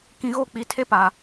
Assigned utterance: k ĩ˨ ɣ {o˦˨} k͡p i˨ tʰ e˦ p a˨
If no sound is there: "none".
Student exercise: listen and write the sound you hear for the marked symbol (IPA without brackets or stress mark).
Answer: o˦˨